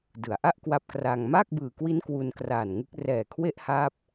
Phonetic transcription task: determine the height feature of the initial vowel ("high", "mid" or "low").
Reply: high